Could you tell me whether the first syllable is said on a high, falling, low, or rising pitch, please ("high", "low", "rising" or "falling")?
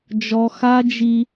high